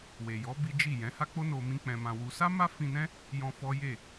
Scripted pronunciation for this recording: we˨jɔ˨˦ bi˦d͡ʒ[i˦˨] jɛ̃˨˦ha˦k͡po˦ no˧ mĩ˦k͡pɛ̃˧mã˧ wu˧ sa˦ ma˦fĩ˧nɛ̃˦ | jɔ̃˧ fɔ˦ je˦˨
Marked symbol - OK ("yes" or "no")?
yes